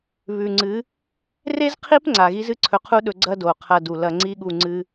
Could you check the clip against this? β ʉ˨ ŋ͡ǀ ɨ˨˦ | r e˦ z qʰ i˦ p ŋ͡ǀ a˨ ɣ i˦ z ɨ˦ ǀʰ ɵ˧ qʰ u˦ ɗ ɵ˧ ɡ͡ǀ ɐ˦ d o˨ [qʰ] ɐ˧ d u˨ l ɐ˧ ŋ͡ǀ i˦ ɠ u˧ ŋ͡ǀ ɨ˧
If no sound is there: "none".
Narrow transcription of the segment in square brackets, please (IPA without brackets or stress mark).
qʰ